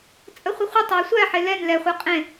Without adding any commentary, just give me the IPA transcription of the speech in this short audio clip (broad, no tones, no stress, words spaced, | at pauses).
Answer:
t͡sʼəχʷəχʷətˤeə̯ sʷæħe lɛn lɛχʷɛ qʼẽ